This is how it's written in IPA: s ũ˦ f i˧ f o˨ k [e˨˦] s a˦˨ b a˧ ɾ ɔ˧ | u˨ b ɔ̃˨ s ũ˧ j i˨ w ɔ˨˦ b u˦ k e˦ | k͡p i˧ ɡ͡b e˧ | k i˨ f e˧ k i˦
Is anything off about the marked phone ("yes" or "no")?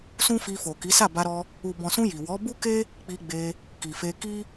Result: yes